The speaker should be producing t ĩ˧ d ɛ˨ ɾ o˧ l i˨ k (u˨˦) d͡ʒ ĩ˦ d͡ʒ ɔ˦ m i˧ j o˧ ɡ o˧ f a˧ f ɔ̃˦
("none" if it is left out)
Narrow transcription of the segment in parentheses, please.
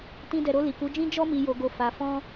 u˨˦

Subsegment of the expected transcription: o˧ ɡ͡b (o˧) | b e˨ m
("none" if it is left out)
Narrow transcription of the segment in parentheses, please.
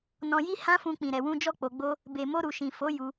o˦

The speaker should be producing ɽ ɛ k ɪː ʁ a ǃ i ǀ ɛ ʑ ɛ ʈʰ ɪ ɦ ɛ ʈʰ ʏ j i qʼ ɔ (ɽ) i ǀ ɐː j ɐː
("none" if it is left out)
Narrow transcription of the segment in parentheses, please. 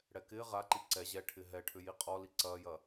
l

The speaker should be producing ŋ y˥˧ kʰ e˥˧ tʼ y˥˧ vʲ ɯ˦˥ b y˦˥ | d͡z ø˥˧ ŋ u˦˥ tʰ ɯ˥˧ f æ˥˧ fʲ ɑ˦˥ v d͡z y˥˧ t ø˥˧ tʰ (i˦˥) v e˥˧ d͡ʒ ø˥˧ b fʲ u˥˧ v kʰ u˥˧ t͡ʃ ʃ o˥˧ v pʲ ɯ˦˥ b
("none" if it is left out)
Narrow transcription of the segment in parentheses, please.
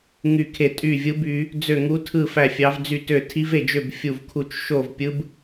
i˦˥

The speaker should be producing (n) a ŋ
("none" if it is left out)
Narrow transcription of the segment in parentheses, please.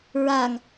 ɹ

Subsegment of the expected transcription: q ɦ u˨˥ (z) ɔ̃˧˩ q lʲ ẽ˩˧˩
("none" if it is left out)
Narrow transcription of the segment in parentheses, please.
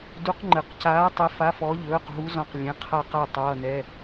z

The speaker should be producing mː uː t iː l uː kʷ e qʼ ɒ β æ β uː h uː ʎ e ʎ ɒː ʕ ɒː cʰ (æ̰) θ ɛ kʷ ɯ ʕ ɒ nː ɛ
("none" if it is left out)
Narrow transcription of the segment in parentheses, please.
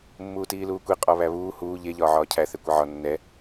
æ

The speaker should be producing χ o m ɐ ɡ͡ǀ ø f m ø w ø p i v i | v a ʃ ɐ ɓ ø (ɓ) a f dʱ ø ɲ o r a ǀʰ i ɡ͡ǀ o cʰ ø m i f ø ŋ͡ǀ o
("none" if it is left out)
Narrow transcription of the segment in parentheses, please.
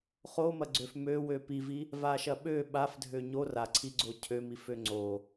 ɓ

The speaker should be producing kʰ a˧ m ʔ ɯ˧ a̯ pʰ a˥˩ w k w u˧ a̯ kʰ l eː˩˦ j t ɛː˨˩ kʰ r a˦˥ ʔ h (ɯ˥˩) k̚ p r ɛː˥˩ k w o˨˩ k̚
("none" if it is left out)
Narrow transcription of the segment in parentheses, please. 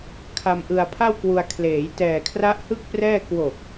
ɯ˥˩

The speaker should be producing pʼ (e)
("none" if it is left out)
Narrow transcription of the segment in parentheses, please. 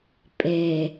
e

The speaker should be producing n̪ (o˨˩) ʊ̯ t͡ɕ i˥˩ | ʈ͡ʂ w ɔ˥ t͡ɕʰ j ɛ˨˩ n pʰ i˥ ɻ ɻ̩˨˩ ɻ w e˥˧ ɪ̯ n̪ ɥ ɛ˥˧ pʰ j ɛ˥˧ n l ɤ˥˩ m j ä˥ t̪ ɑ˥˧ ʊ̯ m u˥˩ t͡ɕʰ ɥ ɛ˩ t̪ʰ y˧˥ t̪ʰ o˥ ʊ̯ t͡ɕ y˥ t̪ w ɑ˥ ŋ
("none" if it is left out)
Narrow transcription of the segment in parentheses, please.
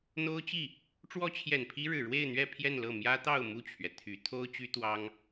o˥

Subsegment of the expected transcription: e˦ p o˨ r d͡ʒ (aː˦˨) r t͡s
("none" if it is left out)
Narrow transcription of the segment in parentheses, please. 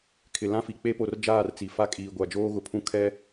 aː˦˨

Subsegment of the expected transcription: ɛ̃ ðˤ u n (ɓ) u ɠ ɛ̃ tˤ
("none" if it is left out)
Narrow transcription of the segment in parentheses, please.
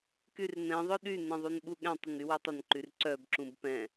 ɓ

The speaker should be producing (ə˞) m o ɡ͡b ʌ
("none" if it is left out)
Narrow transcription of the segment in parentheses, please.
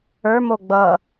ə˞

